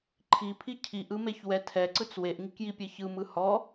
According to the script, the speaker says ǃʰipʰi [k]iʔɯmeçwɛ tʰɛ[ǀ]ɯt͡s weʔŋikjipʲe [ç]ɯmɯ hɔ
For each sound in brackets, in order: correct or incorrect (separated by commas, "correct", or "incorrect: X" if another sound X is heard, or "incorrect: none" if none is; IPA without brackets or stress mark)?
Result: incorrect: cʰ, correct, correct